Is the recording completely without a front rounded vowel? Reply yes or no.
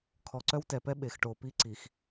no